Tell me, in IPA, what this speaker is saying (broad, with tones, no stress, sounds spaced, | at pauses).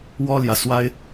w ɔ˥ l j ä˨ s w a˥ ɪ̯